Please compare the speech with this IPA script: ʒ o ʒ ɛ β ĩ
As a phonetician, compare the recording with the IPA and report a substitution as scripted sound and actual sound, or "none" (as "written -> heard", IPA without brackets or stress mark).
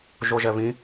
none